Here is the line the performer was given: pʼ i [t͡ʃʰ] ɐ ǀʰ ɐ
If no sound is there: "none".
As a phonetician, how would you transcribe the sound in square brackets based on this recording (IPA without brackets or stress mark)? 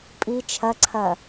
t͡ʃʰ